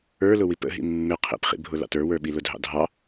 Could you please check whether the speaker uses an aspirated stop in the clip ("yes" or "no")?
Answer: yes